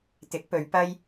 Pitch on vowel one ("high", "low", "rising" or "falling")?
rising